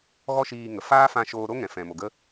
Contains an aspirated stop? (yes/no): no